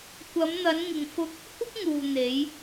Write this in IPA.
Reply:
kʷ ɐ˨˧ m n̪ ɐ˨˧ n ŋ ɪ˨ ŋ f ʊ˧ k̚ | kʷ ɪ˥ k̚ ŋ uː˨ n̪ e˨˧ j

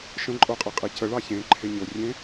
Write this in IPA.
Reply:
ʃ ə̃ ǃʼ o qʼ e qʼ e c ə ɭ ɑ ç ẽ ǃʰ e ɲ o rʲ ẽ

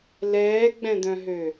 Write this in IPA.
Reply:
l ɛː ɡ͡b ɛ̃ d̪ œ̃ ɦ ø

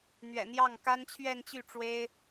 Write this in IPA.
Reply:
n̪ ɥ ɛ̰˨˩ n̪ j ɑ˥˩ ŋ k a˥ n t͡ɕʰ ɥ ɛ˥˧ n t͡ɕ y˥˩ ʈ͡ʂ w e˥ ɪ̯

